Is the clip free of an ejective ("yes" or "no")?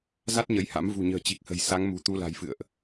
yes